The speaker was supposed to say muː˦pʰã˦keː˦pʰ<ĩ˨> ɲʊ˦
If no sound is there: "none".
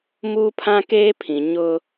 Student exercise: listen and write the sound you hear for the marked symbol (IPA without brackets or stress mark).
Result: ĩ˨